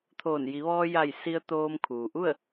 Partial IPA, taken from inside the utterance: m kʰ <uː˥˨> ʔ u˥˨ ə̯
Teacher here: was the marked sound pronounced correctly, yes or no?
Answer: no